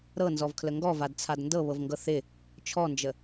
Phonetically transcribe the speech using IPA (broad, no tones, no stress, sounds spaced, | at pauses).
ɾ ɤ n z ɔ v kʰ l ə ŋ ɡ ɔ v a d t͡sʰ a d n d ɤ β ɤ v ŋ ɡ ɤ θ ɪ | t͡ʃʰ ɔ n d͡ʒ ə